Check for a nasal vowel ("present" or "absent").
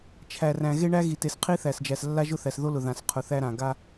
present